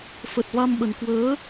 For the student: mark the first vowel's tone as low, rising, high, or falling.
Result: low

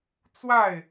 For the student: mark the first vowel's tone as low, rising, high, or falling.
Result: falling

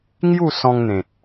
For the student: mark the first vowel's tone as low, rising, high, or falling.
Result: falling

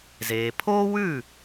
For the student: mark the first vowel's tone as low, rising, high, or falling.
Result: low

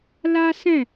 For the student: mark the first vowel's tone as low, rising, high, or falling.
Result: high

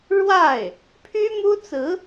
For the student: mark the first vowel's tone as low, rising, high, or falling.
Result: falling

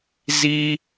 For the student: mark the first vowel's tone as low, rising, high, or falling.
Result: high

